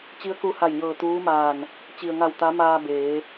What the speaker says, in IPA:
t͡ɕi˧˥ə̯ku˧ha˧˩jɲɤː˧˩ t̪uː˧˥maː˧˩n | t͡ɕi˩ə̯ŋa˧˩w t̪a˧˥maː˧beː˩˧

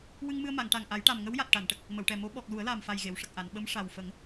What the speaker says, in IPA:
wɨ˧ŋmɨ˧ə̯ ma˨˩˨ŋʈa˨˩ŋʔa˨˩˦jʈa˨˩m ŋə˧˥wja˨˩t̚ ʈa˨˩˨nʈə˨˩k̚ | mə˨˩˨wʈɛ˨˩mo˧˥ ɓɔ˨˩k̚ lu˨˩˦ə̯laː˨˩mfa˨˩j ɣe˨˩˨wʂə˨˩k̚ʔa˨˩˨n ɓə˧˥m ʂa˨˩wfə˨˩˦ŋ

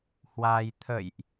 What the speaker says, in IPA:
hwa˧j t̪ʰə̰˧˨jʔ

